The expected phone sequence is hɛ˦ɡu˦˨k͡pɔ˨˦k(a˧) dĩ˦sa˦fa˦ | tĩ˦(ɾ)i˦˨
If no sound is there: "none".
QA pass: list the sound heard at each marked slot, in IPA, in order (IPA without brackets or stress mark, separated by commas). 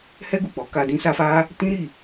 a˧, ɾ